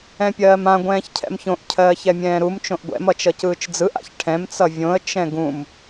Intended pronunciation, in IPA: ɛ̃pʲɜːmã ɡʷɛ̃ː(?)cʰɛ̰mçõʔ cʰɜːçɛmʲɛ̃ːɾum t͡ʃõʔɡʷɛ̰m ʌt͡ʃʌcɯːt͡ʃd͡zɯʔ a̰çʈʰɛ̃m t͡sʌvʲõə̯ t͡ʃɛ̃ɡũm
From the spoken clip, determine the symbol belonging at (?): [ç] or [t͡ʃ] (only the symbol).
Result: ç